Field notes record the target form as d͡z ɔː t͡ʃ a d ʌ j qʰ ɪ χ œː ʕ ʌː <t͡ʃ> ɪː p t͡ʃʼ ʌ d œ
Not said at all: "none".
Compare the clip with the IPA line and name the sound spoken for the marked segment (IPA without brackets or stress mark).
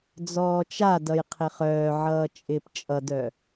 t͡ʃʼ